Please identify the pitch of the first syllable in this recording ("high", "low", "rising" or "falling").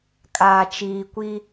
low